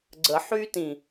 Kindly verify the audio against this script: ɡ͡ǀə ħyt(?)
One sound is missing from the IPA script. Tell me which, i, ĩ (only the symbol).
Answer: ĩ